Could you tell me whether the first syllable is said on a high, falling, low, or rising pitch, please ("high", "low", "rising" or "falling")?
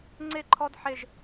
falling